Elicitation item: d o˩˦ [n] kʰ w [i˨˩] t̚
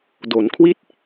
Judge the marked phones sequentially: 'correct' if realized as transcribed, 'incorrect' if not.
correct, incorrect: i˥˩

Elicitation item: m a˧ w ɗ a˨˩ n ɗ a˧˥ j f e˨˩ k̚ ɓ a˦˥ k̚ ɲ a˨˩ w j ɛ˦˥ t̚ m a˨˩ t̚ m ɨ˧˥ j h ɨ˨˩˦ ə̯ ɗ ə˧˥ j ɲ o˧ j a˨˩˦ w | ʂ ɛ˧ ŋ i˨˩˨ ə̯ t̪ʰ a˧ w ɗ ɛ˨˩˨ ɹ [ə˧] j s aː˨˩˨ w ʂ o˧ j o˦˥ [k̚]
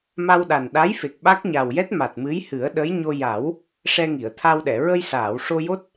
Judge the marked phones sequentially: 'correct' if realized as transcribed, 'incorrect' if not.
correct, incorrect: t̚

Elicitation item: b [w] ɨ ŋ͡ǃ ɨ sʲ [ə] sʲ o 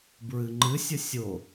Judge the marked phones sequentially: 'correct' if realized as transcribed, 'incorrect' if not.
incorrect: ɹ, correct

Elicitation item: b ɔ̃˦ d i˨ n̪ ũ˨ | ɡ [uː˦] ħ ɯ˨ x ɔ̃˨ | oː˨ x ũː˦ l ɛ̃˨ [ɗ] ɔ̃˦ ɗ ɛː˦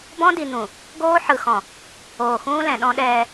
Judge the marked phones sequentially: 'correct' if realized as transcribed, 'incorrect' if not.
incorrect: oː˦, correct

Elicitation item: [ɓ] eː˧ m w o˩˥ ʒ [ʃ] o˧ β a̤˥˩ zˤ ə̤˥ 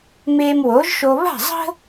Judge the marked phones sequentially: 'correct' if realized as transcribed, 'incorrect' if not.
incorrect: m, correct

